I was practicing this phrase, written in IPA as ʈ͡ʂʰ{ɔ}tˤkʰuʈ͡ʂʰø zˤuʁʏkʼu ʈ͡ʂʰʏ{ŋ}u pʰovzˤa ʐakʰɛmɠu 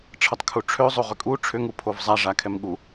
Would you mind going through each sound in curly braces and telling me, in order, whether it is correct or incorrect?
incorrect: ʌ, correct

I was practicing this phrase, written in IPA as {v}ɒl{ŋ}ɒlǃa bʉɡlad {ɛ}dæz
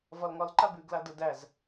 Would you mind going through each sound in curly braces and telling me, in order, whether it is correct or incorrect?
correct, correct, incorrect: ə

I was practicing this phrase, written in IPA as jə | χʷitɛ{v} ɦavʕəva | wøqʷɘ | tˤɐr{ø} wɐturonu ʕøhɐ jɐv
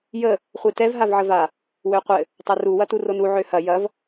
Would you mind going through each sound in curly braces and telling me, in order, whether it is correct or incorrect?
correct, incorrect: u

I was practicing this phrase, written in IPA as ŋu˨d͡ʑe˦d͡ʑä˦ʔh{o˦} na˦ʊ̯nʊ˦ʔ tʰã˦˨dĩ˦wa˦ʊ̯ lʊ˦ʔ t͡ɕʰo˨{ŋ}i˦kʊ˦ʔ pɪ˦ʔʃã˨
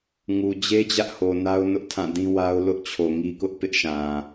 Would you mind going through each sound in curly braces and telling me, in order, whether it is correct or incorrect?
incorrect: o˨, correct

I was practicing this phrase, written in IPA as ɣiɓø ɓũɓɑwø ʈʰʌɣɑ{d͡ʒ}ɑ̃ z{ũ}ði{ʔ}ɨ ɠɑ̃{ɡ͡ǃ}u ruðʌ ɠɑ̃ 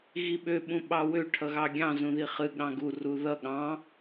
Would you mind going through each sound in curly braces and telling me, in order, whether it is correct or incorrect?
incorrect: ɡʲ, correct, incorrect: χ, incorrect: ɡ

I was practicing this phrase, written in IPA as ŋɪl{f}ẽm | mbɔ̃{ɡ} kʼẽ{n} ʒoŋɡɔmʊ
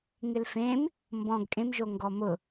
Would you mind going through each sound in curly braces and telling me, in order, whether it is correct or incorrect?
correct, correct, incorrect: m

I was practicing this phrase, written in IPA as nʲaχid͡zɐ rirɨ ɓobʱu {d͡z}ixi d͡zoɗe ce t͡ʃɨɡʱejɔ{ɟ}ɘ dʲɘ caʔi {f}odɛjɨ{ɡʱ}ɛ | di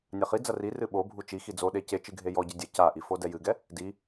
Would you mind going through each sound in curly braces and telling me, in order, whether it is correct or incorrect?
incorrect: t͡ʃ, correct, correct, incorrect: ɡ

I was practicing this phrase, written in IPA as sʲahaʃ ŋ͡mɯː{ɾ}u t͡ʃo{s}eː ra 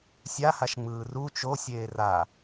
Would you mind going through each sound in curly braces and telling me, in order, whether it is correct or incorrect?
incorrect: r, incorrect: sʲ

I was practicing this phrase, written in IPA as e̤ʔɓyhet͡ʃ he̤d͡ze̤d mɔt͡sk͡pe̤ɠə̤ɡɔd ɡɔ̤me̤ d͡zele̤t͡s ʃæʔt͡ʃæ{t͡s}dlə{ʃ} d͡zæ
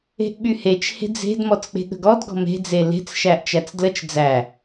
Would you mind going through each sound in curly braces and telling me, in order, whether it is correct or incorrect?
correct, incorrect: t͡ʃ

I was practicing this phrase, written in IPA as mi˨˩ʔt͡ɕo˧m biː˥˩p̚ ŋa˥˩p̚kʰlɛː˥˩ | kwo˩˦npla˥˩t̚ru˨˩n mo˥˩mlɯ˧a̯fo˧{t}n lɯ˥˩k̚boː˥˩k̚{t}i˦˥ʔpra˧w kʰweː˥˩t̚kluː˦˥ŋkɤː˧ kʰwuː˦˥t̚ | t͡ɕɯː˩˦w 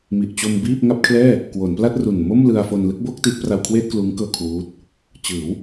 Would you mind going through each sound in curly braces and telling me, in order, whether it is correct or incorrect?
incorrect: none, correct

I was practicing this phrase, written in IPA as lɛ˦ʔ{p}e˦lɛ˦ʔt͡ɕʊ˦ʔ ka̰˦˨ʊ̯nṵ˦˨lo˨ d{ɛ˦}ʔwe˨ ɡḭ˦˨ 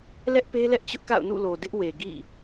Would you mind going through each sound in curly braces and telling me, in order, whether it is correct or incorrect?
correct, incorrect: ɪ˦

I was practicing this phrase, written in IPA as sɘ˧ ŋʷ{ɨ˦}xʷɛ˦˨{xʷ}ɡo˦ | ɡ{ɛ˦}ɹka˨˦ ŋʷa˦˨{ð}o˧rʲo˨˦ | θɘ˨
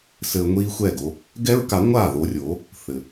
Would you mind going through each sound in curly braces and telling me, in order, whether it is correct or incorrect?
incorrect: i˦, incorrect: none, correct, correct

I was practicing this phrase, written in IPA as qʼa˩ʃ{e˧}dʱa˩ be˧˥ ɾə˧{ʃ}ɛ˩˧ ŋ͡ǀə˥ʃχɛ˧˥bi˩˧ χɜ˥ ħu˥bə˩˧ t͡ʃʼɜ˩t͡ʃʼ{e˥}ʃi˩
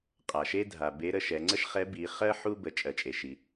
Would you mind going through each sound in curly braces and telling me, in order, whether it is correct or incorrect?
incorrect: e˥, correct, incorrect: e˩

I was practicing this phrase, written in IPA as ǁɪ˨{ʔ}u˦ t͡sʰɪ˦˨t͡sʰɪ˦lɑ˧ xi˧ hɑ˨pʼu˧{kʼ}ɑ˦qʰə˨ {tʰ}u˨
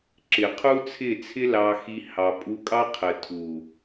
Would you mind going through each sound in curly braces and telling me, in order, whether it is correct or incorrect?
incorrect: qʰ, correct, correct

